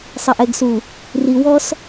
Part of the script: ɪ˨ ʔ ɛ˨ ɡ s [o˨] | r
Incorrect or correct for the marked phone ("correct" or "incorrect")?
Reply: incorrect